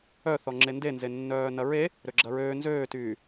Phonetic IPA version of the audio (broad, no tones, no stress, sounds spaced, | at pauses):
œ θ ɔ ŋ͡ǁ e n d e n z e nː œː n ɐ ɹ e | ɾ ø ɡ͡ǁ ɐ ɹ øː n z øː t yː